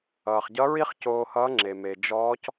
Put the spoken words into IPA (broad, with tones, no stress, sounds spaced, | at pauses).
ʌː˩ χ ɟ ʌ˧˥ ɹ i˥ χ c oː˧ h ʌː˧˥ ŋ͡ǁ e˩ m e˩ d͡ʒ ɔː˧˥ c